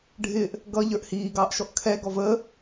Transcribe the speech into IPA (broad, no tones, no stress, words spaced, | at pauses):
ɖʱɪːʔ | ɡʌ ʎə˞ʔhiːɡɑːʔʃɔʔ kʰɛ ɡɔvəː